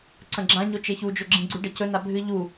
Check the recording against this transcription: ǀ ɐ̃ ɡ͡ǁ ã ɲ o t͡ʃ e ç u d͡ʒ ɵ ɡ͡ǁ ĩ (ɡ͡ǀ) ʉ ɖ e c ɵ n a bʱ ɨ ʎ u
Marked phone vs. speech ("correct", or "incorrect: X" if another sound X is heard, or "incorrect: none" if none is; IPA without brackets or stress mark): correct